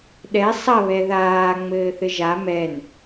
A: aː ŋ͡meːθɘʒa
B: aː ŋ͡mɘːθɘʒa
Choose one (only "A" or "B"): B